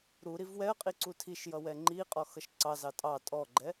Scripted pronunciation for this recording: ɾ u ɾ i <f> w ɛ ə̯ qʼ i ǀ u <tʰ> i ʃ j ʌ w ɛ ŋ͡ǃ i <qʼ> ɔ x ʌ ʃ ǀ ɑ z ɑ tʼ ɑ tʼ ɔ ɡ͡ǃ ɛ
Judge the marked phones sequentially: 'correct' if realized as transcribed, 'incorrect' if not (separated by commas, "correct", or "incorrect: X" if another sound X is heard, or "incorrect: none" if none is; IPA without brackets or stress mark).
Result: incorrect: v, correct, correct